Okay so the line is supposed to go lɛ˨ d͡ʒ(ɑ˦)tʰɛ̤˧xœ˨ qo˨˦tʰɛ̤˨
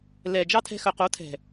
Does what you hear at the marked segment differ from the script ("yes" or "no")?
no